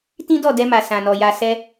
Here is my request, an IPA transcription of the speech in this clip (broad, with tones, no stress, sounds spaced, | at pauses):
t ĩ˦ d ɔ˦˨ d ɛ˧ m a˨ s ã˨ n ɔ˨ j a˨ s ɛ˧